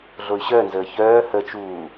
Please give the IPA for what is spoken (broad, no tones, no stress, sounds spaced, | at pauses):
ɮ o y̯ ɕ œ n z əː ç œː h ə t͡ʃ uː